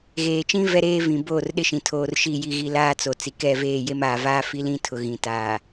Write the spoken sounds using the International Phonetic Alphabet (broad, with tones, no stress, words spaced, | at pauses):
ɣeː˨t͡ʃĩ˦ vɛ˦ɾeː˦vĩ˨ boː˦˨rɗɪ˦ʃĩ˨ tʰoː˦r ʃi˦˨ ji˦˨ɣi˦ laː˦t͡so˨ t͡si˨kɛ˦˨veː˦˨je˦m aː˨vaː˦fi˦lĩ˦ tʰʊ˨ ɣĩ˨ taː˨